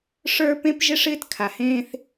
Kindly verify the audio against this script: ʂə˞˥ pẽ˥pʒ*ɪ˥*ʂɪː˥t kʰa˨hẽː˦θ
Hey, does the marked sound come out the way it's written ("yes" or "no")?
yes